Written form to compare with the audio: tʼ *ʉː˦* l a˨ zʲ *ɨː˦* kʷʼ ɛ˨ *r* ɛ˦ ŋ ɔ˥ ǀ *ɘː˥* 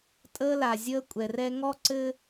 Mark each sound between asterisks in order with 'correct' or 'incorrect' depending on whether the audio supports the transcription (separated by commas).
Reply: incorrect, incorrect, correct, correct